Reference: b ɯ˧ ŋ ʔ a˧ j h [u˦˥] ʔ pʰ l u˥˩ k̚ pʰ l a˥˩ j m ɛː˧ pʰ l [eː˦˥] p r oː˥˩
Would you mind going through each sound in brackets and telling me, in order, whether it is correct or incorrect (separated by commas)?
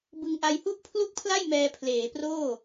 incorrect, incorrect